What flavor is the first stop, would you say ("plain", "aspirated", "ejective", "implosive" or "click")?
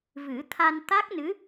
aspirated